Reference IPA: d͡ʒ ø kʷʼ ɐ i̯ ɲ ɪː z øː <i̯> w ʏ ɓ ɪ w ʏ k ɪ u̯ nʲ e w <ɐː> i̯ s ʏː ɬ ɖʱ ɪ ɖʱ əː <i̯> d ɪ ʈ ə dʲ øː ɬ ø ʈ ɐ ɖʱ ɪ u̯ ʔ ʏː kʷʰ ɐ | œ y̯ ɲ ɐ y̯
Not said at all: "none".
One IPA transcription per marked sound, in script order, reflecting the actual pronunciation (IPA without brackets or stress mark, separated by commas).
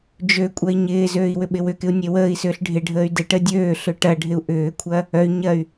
i̯, əː, y̯